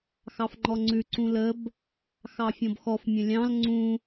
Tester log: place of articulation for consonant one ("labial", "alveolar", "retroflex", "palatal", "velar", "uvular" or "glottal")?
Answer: velar